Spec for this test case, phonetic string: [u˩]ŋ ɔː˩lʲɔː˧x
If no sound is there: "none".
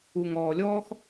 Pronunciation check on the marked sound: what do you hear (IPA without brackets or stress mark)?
u˩